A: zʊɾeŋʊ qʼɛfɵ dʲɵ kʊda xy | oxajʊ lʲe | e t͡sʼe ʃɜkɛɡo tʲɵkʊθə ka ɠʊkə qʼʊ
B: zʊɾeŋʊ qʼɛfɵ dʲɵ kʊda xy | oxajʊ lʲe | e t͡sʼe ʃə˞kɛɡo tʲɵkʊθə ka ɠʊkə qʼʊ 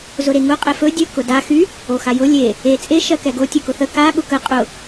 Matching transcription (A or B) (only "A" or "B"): A